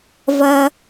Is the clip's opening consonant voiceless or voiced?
voiced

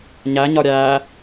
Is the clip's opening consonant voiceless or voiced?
voiced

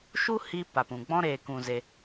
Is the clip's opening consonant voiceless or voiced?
voiceless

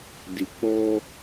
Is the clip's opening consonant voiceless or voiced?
voiced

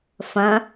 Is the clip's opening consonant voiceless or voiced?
voiceless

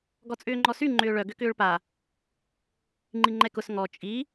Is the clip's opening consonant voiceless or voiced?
voiced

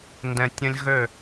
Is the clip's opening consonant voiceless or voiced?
voiced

